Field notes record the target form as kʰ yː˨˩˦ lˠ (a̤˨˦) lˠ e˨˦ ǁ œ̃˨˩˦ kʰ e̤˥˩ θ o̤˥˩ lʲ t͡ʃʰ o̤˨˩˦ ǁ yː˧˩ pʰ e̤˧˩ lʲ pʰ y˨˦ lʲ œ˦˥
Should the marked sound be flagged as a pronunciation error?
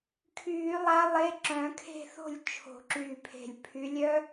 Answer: yes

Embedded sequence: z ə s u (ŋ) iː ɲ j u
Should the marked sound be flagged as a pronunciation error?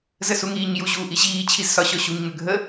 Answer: no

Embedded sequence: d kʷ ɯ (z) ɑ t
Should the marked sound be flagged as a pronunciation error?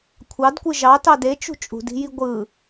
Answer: yes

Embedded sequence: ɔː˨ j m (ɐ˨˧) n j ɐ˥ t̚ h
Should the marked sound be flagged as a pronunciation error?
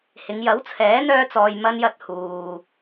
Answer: yes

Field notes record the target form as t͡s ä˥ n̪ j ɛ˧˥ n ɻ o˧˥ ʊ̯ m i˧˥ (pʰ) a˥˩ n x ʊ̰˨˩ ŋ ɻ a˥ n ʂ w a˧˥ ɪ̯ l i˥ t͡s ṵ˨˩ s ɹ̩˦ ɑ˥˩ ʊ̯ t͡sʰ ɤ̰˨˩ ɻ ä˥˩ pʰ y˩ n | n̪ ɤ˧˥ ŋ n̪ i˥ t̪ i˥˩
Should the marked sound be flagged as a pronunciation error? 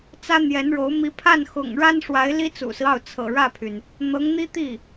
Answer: no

